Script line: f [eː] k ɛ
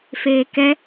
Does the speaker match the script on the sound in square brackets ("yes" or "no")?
yes